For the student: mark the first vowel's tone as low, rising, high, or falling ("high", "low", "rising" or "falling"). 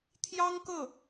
high